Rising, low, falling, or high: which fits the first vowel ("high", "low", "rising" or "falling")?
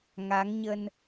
rising